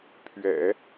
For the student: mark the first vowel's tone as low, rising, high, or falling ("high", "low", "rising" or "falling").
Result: low